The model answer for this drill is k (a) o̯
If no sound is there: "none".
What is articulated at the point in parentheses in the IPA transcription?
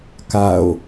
a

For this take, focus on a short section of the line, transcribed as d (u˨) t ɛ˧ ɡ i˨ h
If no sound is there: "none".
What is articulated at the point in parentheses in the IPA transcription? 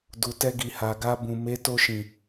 u˨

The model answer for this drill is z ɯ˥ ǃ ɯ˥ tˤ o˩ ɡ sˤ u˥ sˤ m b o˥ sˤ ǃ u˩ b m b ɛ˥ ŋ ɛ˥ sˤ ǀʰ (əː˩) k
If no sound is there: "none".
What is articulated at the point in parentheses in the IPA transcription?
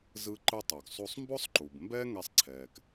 ɛː˩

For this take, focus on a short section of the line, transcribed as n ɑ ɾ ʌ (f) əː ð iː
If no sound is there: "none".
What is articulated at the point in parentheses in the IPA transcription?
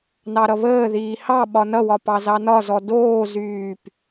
β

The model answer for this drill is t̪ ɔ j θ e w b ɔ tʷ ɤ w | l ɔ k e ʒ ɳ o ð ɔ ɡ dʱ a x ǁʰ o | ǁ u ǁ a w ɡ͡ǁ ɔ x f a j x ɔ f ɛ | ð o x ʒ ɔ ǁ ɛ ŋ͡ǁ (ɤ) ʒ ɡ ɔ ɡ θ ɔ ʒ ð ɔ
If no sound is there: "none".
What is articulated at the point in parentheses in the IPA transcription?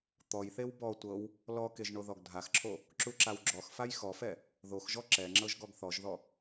ɤ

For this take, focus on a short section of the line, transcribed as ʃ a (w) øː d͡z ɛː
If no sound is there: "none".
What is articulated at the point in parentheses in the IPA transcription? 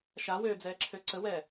w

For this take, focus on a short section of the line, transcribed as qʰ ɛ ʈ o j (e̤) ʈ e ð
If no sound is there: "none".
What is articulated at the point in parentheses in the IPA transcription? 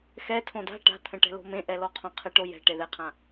ɛ̤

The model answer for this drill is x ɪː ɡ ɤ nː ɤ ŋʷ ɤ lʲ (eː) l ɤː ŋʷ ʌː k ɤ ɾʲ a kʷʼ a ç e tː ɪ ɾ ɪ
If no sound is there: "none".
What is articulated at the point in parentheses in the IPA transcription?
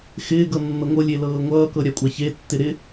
e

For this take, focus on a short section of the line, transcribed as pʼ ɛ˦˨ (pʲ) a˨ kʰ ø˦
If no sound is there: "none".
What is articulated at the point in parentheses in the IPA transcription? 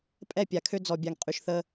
pʲ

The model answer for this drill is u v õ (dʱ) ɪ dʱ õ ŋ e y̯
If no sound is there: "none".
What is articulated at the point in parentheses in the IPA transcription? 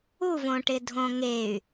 ʈ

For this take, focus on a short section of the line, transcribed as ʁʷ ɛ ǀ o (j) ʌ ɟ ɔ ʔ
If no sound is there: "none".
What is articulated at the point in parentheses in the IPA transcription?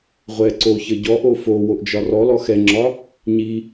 ç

